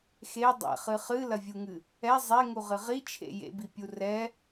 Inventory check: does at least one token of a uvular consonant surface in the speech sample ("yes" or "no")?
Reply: yes